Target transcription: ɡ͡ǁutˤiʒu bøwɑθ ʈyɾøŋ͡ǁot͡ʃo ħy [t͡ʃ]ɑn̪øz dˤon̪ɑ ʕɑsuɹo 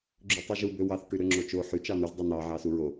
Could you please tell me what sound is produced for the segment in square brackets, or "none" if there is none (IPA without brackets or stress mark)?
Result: t͡ʃ